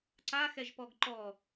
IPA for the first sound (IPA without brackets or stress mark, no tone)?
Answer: ǀ